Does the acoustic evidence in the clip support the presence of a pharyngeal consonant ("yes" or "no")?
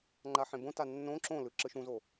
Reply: yes